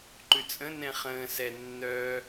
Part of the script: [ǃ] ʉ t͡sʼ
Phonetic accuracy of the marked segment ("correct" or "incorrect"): correct